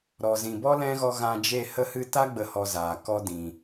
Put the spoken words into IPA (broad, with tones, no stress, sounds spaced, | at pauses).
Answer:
ɾ ɔ˨ z ĩ˨ b ɔ˦ l ɛ̃˦ ɣ ɔ˧ ɣ ã˧ d͡ʒ e˦˨ h ə˧ h ɨ˧ t a˦ ɡ͡b ə˦˨ h ɔ˧ z aː˨ k ɔ˦ d ĩ˨